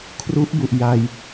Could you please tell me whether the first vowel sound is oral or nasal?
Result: oral